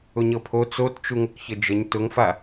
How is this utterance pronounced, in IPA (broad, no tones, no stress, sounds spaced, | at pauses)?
ʊ ɲ ɤ pʰ o t͡s o t t͡ʃ u ŋ ʊ k ç ə d͡ʒ ə ɲ t ʊ ŋ f a